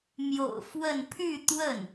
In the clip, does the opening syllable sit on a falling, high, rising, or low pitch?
low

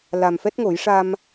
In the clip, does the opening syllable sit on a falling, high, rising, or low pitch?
low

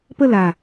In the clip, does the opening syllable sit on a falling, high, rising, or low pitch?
falling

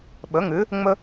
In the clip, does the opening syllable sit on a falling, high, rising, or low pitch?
rising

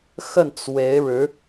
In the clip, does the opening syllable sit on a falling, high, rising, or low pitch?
falling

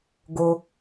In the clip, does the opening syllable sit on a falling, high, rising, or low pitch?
low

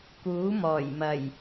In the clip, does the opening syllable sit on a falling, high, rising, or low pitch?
rising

